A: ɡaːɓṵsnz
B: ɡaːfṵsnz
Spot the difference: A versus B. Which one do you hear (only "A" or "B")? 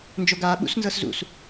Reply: A